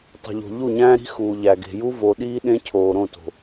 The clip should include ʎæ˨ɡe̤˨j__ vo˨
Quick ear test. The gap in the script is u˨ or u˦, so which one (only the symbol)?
u˦